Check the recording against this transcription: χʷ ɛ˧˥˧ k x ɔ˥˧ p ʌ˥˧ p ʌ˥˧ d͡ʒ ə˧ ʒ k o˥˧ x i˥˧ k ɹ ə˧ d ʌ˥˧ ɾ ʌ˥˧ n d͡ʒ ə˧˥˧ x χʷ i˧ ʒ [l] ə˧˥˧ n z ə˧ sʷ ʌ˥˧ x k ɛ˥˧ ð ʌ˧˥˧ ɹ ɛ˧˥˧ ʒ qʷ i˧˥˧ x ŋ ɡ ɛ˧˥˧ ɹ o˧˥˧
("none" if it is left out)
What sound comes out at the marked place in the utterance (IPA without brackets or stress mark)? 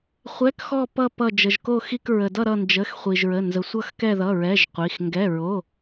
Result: ɹ